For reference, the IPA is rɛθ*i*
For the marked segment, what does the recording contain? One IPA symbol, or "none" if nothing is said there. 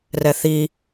i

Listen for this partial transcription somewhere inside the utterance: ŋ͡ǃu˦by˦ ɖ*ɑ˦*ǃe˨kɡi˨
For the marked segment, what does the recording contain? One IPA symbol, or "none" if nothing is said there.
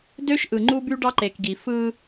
ɑ˦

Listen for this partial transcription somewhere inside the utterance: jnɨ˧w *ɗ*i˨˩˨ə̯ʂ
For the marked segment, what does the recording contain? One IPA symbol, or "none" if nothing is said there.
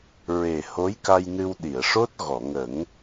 ɗ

